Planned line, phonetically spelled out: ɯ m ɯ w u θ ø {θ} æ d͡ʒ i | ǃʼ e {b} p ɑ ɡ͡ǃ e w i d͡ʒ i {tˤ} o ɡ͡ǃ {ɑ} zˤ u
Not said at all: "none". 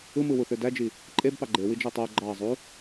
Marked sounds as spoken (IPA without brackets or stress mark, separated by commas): d, b, tˤ, ɑ